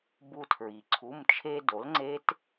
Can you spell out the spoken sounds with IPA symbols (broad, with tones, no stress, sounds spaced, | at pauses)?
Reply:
b u˧ tʰ ɹ i˩ ǀʰ u˩˧˩ m t͡ʃʰ e˧ d o˩˥ l ŋ͡ǀ e˦˥ t